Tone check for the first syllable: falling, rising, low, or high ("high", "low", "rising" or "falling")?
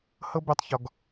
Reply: high